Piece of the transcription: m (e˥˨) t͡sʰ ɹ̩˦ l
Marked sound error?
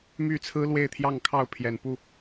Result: yes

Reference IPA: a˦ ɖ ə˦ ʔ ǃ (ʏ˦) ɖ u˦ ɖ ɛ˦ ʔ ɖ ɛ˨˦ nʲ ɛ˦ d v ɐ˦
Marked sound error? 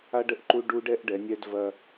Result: yes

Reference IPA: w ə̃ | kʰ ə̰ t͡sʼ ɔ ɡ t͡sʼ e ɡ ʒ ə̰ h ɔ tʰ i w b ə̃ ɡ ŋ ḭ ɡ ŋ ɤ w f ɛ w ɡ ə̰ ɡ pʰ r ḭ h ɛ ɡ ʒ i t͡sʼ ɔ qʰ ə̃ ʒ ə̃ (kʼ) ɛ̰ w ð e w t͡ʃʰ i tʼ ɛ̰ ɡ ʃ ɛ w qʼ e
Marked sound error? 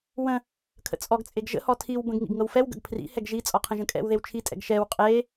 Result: no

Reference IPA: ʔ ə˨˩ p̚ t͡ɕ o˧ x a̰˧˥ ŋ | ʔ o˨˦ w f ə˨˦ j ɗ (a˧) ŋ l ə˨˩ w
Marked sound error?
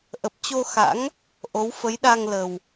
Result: no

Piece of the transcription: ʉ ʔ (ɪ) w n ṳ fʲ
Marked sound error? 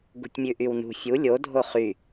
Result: yes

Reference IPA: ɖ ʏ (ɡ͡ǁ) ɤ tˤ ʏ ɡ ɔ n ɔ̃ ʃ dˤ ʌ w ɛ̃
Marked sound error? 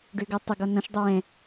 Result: yes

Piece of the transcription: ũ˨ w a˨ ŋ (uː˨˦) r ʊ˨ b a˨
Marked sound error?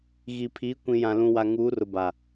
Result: no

